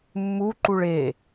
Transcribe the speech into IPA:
mː u ǃ u ɭ e

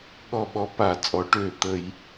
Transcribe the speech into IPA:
ɠ ɔ˧˩ ɓ ɔ˧˩˧ p a˧˩˧ t͡sʼ ɔ˩˥ ʈ øː˧˩ t̪ ə˧˩˧ j

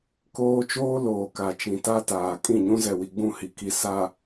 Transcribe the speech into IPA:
k oː˦ t͡ʃ oː˦ l oː˨ k a˨ t͡ʃ ĩ˨ t a˦ t aː˨ kʼ ĩ˦˨ ɲ ũ˦ z ɛ˨ w i˨ ɡ͡b ũ˦˨ h i˨ k i˨ s a˨

